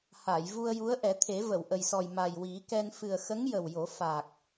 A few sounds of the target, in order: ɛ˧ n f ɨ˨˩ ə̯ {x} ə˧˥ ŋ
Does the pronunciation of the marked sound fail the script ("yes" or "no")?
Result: no